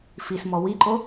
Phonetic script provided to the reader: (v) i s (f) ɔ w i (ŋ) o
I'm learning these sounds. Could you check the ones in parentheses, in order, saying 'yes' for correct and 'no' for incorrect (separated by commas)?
no, no, no